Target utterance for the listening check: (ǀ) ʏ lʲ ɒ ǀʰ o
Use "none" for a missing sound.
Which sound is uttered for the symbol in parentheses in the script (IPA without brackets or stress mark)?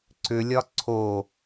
ǀ